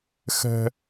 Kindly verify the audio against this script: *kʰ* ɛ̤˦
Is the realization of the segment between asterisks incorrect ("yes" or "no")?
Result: yes